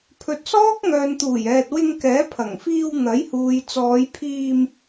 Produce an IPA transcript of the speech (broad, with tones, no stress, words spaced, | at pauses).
pʰɵ˨t̚sɔː˥k̚ ŋœː˨nt̪uː˨˩jɛː˨t̚ wɪ˧ŋkɛː˨˥pʰɐ˨˩ŋfiː˧w n̪ɐ˨˥jhuː˨j t͡sɔː˨˧jpʰiː˧m